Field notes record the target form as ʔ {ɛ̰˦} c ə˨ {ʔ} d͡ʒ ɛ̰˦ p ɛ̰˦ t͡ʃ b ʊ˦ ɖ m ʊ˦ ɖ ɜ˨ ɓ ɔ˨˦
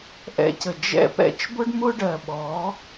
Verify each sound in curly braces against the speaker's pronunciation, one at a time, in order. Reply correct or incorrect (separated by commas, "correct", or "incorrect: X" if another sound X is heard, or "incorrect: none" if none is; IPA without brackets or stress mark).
correct, incorrect: none